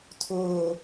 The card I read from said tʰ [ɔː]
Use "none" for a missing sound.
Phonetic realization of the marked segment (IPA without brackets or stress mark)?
ʊː